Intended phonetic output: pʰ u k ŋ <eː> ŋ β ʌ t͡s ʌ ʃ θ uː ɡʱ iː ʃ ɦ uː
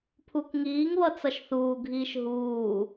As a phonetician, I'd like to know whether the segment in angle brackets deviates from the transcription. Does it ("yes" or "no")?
yes